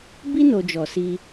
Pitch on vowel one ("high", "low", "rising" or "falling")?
high